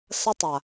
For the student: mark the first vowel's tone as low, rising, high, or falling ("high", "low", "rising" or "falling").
high